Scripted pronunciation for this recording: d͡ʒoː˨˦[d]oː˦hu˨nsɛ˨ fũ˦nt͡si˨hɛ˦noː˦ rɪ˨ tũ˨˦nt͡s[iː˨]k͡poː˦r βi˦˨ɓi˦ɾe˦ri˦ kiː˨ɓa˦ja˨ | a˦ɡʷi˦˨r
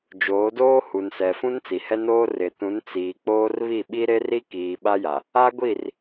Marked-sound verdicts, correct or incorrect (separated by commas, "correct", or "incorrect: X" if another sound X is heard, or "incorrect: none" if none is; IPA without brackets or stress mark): correct, correct